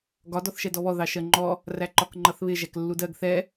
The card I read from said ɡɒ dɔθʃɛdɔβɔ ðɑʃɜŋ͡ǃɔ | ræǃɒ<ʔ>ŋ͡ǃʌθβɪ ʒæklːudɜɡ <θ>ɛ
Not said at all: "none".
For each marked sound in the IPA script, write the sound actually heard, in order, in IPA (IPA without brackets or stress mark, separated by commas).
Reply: k, θ